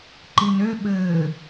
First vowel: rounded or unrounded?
unrounded